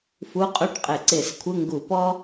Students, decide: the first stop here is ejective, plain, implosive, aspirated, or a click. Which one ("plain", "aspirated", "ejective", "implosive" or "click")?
ejective